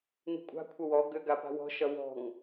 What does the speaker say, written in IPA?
n̪i̤kʷʼa̤ kʷʰəwɔ ɡʏ ɡapa̤wɔ̤ ʃʌwɔ̤ŋ

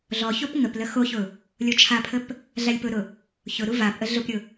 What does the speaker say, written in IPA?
ɮɔ çopŋəplə xoçʊ | lʲot͡ʃʰapʰəp | ɮalʲpʊɾʊ | çʊɾu vap ʔəɮʊpɾʲʊ

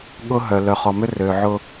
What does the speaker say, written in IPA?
ɠʊ˦ɦœ˨ lœ˨χɔ˨mʏ˦ rø˨ʕʊ˦

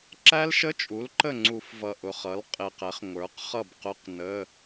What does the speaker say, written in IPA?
ǁæ˦˥lʃə˧˥˧t͡ʃʼu˩˥l ǃə˥˩ŋ͡ǀu˧˩˧fvʌ˨˩ ʔʊ˨˩χʌ˩˥lqʼɪ˨˩qɛ˩˥χ ŋʷə˞˩˥qχʌ˥˩bqʊ˧˥˧q nə˧˥˧

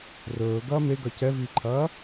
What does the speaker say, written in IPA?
rɵː ɡɐːmeɡɐ cɛviːǃʰɐː

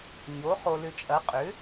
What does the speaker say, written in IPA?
ɲo˩˥χo˨ lʏ˨t͡ʃʼɐ˩˥ qʼʏ˩˥

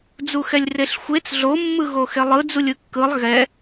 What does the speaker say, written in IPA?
d͡zuxɛlʲreɬxʷet͡s ɮo mːɯɣoxelˠɯ d͡zulʲɯkːɯlˠ ɣɛ

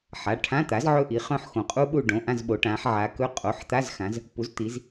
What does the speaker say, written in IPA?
ħa˩˧˩ʈʰã˧˥˧t̪a˩˥z ʕɵ˦˨ʔi˩˧χœ̃˦˨ħxõ˩˧ qʼu˦˥ɓu˦˨ ɖõ˩˧˩ʔã˦˨zɓo˩˧ ʈã˩˧ħʕa˩˧kɵ˧˥˧ qʼo˩˧˩ħt̪a˧˥˧z xã˩˧z | pu˩˥zt̪i˩˧z

